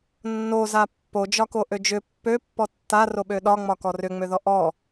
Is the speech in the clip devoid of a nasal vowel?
yes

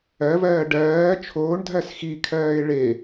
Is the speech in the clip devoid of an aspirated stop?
no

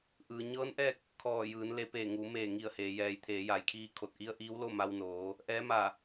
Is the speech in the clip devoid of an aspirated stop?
no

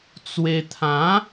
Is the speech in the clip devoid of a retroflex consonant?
yes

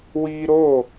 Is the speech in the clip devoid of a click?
yes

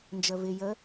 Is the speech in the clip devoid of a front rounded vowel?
yes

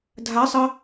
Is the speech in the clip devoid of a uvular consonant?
yes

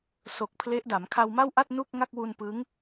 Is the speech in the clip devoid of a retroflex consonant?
yes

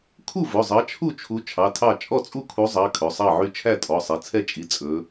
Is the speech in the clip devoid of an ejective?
no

